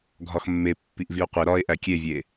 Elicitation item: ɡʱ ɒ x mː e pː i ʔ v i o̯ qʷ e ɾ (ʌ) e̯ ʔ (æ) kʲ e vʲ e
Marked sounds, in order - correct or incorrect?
incorrect: ɒ, correct

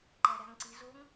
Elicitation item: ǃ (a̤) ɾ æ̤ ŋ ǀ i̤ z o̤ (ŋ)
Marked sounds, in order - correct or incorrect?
incorrect: æ̤, correct

